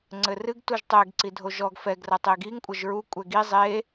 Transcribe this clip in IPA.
ŋ͡ǀɘrɨɡ tuʒtˤɛɡ ǀidʱoʒɔɡ fɛɡ rɐtˤeɡiŋ kʷʼɐʒɹu kʷʼɛɡi zˤe

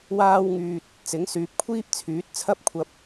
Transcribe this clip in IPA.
waː˥wŋyː˧t̚ | t͡sɪ˨˥ŋsyː˨p̚kʷʰiː˥p̚ t͡sʰyː˨˥t̚t͡sʰɐ˥p̚kʷʰɐ˧p̚

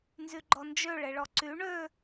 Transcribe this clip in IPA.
nzyɡ͡ǃɔnd͡ʒø ɭeɭɔǀy ɳø

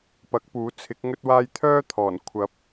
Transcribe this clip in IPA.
pɐ˨˥k̚puː˨˥t͡sʰɪ˨˥k̚ ŋɵ˥t̚waː˥j t̪ʰœː˥t̪ʰɔː˨˩n kʷʰɐ˨˥p̚

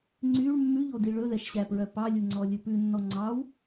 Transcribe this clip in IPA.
ŋ͡ǀyɭ mːʉʎodi ɭɵðɛʃɕæpɹœ pɑlʲuŋ͡ǀɔlʲɵ pʉnːɔ ŋ͡ǀɑw

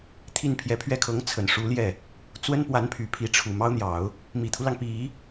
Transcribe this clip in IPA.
t̪ʰi˥˩npʰjɛ˧˥ pʰɥɛ˥˩kʰɤ˧˥ŋ t͡sʰə˨˩n ʂu˧˥ljɛ˥˩ | t͡swə˥npwa˧˥npʰy˨˩ pʰi˧˥ʈ͡ʂʰu˨˩mɑ˥ʊ̯n̪jɑ˨˩˦ʊ̯ | mi˨˩t̪ʰu˦lɑ˩ŋ pi˨˩˦

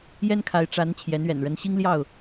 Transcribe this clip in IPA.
jɛ˦nkʰa˨˦ɪ̯ ʈ͡ʂa˨˦n t͡ɕʰjɛ˨˦nɥɛ̰˨˩n ɻə˨˦nɕi˦ŋljɑ˥˨ʊ̯

